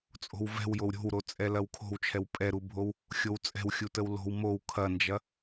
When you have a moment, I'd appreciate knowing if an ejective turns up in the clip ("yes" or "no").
yes